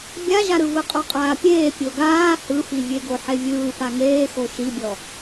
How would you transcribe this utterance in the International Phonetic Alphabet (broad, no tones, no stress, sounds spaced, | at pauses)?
bʲ a ʒ a ɾ ɯ v ɯ qʼ ɔ qʼ aː pʲ eː pʲ o ɡ aː h ɯ f i vʲ e ɡ o ħ e vʲ ɯː p a ŋ eː x o ʃ i bʲ ɔ